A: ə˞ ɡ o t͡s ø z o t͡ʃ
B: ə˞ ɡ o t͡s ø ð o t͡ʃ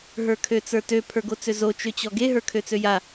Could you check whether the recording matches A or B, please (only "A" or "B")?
A